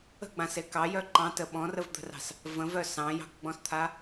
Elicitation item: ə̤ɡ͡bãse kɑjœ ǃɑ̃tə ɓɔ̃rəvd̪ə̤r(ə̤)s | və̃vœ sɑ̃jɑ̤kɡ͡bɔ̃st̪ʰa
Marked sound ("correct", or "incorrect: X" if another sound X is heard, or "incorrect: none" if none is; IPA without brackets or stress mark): incorrect: ɑ̤